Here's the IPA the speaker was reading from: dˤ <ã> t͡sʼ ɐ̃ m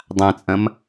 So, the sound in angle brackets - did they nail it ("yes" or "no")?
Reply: yes